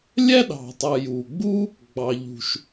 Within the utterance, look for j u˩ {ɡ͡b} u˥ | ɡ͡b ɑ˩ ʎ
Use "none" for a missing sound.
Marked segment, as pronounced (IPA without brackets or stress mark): ɡ͡b